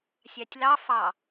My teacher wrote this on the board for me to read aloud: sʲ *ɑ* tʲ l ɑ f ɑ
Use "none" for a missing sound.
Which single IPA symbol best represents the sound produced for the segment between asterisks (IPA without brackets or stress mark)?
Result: ɑ